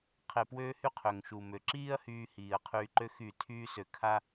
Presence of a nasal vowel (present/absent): absent